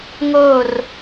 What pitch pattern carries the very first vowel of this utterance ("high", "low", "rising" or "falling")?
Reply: falling